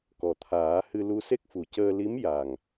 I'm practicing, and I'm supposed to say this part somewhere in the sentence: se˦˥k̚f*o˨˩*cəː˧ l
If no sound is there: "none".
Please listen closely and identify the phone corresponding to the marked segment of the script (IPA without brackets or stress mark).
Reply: u˨˩